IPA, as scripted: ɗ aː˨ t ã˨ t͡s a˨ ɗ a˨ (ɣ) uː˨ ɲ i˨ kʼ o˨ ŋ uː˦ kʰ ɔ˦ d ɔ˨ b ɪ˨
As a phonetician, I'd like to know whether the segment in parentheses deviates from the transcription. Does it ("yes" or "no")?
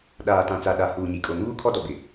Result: yes